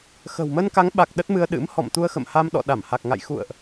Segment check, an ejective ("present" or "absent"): absent